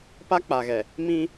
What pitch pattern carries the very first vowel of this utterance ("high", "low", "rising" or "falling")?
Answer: high